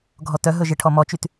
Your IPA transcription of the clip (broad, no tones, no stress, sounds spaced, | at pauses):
ɡʱ ɔ t œ ɦ ɵ ʒ e ʈʰ ɔ m ɔ t͡ʃ y t